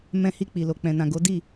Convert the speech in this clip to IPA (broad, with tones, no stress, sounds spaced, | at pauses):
m ɛ̃˧ h i˧ k͡p i˨ l o˨ k͡p ɛ̃˨ n ã˨ ɡ o˨˦ d i˦˨